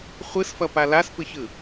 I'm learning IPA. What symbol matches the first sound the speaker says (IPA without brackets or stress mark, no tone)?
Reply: χʷ